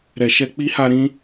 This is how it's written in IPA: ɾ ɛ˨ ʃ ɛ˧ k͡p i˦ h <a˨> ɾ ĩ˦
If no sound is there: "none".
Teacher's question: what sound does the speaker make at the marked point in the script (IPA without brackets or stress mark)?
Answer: a˧